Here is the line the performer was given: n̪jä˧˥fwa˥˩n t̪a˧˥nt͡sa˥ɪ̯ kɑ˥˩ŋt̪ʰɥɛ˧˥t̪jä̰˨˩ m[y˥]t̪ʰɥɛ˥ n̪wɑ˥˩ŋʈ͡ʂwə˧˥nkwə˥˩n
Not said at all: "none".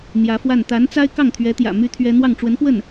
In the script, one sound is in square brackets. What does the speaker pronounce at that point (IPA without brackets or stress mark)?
y˥